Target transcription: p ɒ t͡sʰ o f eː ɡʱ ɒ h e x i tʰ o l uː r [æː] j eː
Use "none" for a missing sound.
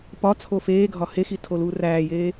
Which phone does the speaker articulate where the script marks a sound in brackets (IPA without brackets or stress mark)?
æː